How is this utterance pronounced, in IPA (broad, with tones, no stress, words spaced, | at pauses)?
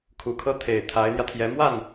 kʰu˨˩kʰɤ˥˩t̪ʰe˨˩ɪ̯ t̪ʰa˧˥ɪ̯n̪jä˧t̪ʰjɛ˧˥ mwa˥˩n